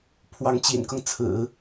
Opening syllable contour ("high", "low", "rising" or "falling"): rising